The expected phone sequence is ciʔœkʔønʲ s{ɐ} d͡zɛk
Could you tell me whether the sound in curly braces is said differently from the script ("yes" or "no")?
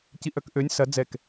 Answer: no